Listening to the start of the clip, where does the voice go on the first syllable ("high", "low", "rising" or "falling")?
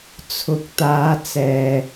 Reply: low